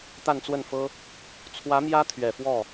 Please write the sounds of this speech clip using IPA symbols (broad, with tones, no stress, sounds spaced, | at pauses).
t̪ a˥˧ n t͡s w ə˥˩ n f ɤ˥ | t͡sʰ w ä˧˥ m j ä˥ t̪ʰ ɥ ɛ˨˩ f w ɔ˥˩